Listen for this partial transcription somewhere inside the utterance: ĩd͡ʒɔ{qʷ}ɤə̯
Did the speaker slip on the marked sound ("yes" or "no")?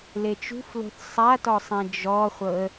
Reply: yes